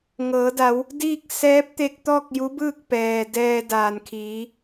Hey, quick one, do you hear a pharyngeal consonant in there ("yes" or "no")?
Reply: no